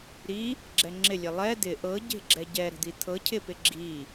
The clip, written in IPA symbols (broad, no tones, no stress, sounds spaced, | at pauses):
ɾ i | ɡ͡ǁ ɛ ŋ͡ǁ ɪ lʲ e lˠ ɛ d̪ ɪ ʔ ɤ ɟ e̤ ɡ͡ǁ ɛ ɟ ɛ ɾ ə̤ d̪ i t̪ʰ ɤ cʰ ɪ p ɪ ɡ͡ǁ i